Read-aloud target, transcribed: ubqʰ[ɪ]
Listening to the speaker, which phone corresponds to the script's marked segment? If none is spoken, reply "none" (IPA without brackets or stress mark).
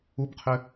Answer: ɪ